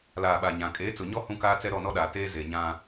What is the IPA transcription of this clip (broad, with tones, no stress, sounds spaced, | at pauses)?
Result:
l aː˨ ɓ a˨ ɲ ã˨ kʼ eː˨˦ t͡s ʊ˨ ɲ ɔ˦ h ũ˦ k aː˦ t͡s ɛ˦ ɾ ɔ˦˨ n ɔ˦ ɗ aː˨ t eː˦ z e˨ ɲ ã˦